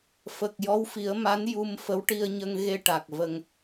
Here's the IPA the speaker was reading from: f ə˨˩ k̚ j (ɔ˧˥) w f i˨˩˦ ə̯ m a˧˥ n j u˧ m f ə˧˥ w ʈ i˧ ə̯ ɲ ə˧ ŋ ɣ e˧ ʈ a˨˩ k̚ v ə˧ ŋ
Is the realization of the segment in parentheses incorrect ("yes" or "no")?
no